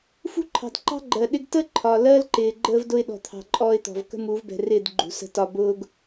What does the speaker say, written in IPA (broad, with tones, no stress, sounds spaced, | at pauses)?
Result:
f ṳ˦ ǃʰ ɑ̤˨ d ǃ ɑ̤˦ ɡ͡ǃ ɜ˨ ɗ ɪ˦ ɡ t ə˦ ǃʰ ɒ˨ l ɜ˦ l ǃ ɪː˨ ɡ͡ǃ əː˦ v d ʊ˦ ɪ̯ ɗ ɔ̤˨ t̪ʰ ɑ̤˨ ǃʼ ɔː˦ ɪ̯ t̪ ɔ̤˨ v k ə̤˦ m u˨˦ v b ɛ̤˨ r ɪː˦˨ d ɡ͡ǃ ṳ˨ s ə̤˦ t ɒ˦ b ʊː˦ ɡ